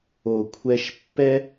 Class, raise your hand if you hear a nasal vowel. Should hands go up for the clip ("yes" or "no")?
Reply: no